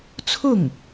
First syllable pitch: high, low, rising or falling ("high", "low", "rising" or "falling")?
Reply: falling